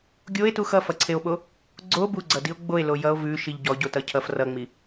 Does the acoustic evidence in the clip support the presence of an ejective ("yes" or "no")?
no